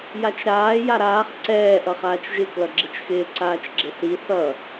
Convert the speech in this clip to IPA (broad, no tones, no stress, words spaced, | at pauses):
jat͡ʃɾaː jaɾaːχ ǀɛː ʔʌχaːt͡ʃʒɪ klʌɡ͡ǁɪt͡ʃxɪː ǀaːt͡ʃɡ͡ǁɪθi θʌ